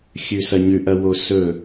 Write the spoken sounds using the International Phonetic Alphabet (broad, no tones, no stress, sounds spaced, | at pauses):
xʲ ʉ s ɐ ɲ ʉ ʔ ɐ w o s ɵ